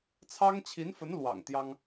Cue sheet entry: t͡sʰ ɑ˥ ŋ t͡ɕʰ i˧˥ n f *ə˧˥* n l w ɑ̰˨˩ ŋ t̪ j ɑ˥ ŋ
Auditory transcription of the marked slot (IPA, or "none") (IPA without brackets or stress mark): ə˧˥